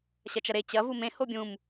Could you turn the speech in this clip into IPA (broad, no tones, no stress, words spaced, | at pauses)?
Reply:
ɕɐt͡ʃɐɾe t͡ɕɐ vumẽ hobʲũm